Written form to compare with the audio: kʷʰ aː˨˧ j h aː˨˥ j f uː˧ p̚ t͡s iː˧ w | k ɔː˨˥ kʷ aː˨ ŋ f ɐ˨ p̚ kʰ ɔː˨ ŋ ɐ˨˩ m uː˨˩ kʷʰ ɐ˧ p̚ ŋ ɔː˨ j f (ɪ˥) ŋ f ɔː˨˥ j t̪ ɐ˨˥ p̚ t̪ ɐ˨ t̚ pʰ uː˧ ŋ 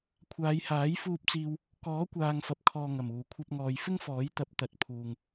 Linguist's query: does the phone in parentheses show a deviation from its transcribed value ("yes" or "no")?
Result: no